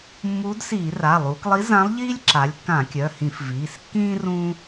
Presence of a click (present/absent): present